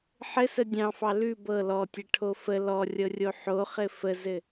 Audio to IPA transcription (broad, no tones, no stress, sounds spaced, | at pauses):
ħ ɘ s ə dʲ ɑ̃ f ɑ l ʉ b ɤ l ɔ tʲ ə ʈʰ o f ə l ɔ rʲ ɤ rʲ o ħ o χ ɘ f ə z ɘ